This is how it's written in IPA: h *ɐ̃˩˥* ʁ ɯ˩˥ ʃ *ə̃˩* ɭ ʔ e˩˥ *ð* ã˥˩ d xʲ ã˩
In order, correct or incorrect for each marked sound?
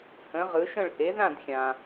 incorrect, incorrect, correct

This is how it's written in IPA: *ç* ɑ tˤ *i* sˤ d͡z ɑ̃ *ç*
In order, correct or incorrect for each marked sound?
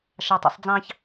incorrect, incorrect, correct

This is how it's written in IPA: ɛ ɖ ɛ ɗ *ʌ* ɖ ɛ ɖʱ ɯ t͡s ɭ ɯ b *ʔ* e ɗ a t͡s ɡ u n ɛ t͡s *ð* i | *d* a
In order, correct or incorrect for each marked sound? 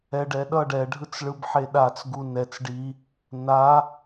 correct, incorrect, incorrect, incorrect

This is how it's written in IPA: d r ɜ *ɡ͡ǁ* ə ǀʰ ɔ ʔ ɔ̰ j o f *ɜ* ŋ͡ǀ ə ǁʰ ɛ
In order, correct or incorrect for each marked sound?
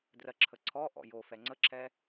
incorrect, incorrect

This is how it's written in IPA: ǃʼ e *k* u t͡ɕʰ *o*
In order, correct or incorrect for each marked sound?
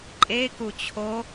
correct, correct

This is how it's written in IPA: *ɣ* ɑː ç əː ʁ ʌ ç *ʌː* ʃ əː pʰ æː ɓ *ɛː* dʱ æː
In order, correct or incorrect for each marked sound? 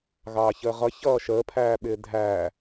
correct, correct, incorrect

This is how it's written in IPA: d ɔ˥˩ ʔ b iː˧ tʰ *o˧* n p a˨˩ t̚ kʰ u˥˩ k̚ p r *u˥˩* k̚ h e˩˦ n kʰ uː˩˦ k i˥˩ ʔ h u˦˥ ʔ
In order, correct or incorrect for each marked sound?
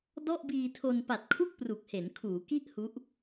correct, incorrect

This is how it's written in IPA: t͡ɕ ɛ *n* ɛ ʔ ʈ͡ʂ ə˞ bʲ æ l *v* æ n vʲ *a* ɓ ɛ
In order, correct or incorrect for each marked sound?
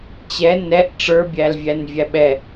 correct, incorrect, incorrect

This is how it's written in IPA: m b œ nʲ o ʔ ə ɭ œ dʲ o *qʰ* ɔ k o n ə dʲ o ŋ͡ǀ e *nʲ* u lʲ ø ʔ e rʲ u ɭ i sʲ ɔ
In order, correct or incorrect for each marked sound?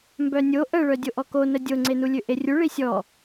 incorrect, incorrect

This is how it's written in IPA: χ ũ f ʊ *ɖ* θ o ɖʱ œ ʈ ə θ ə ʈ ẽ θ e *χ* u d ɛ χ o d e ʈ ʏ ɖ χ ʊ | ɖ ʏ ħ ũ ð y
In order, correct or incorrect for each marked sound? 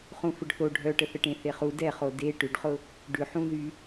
correct, correct

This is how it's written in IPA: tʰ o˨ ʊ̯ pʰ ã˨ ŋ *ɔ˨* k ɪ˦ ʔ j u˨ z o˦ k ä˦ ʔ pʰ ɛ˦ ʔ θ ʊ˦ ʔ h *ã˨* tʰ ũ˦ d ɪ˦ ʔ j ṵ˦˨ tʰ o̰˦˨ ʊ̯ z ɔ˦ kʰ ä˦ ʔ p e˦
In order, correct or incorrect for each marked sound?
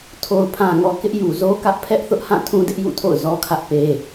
correct, incorrect

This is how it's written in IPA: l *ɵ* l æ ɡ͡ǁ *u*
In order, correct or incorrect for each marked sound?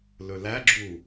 correct, correct

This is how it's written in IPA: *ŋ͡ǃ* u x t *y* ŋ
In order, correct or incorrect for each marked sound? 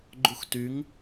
incorrect, correct

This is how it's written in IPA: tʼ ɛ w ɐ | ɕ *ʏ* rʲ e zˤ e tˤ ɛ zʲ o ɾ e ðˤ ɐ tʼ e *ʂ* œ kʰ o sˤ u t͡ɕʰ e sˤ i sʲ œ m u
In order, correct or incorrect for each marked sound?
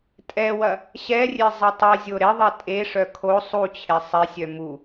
incorrect, correct

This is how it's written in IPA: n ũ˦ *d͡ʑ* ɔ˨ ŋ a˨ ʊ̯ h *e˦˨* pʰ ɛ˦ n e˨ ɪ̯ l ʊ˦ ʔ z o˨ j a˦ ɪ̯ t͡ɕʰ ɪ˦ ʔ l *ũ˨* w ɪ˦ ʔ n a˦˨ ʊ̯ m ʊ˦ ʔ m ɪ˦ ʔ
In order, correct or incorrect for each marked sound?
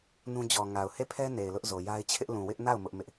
correct, correct, correct

